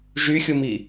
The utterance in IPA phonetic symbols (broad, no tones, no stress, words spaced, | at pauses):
ʒyxʲumi